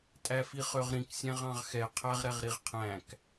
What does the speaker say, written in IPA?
tʼ æ f i χ ø ʁ ɾ ĩ k sʲ æ̃ ʁ ɑ̃ ʁ x ɛ qʰ æ ʁ ɾ ɛ ʁ ɾ i ʁ qʰ æ̃ k

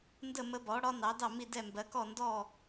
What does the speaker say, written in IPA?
n d ə˥˩ m ə˧˥ b ɔ˩˥ ɽ ɒ˧˥ n ɑ˩˥ d ɑ˥˩ m i˥˩ d ɛ˥˩ m b ɜ˩˥ k ɔ˥˩ n d ɔ˥˩

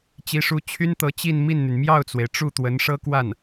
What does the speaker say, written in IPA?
t͡ɕ i˧˥ ʂ u˧˥ t͡ɕʰ y˥ n t̪ ɤ˧˥ t͡ɕ i˥˧ n m i˥˩ n n̪ y˩ n m j ɑ˥˩ ʊ̯ t͡s w e˩ ɪ̯ ʈ͡ʂ u˥˩ t̪ w ə˧˥ n ʂ ɤ˥ k w a˥˩ n

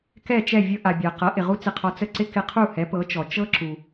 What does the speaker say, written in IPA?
k ɛ˥˩ t͡ʃ ɛ˥˩ vʲ ɤ˧ ʔ a˩ bʲ a˩ q ɤ˩˥ ʔ ɪ˩ ʁ u˥ t͡s ɪ˧ qʰ ɔ˧ t͡s ə˥˩ ǀ ɪ˥ k ɪ˧ qʰ u˥˩ h ɛ˩˥ p ɤ˩˥ t͡ʃ ɔ˩ t͡ʃ ɤ˥ ǁ u˩

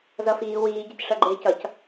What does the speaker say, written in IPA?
z ʌ f iː w iː ɟ ɪ c ʂ ʌ ɡ͡ǃ ɪː c ʌ c

